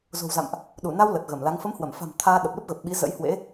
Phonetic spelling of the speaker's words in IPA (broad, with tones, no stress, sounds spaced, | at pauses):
z o̤˨˩ w z a̰˧˨ m ʔ | ɗ u˧˩ n a˧ w l ə˨˩ t̚ ɣ ə˧˩ m l a˨˦ ŋ f ə˨˦ m h w ə˧˩ m f a̤˨˩ m t̪ʰ aː˧ ɗ ə˨˩ p̚ l ə˦˥ p̚ ɣ ə˨˩ p̚ ɓ i˨˦ z ə̰˧˥ j h w ḛ˧˥